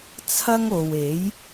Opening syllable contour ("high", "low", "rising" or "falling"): high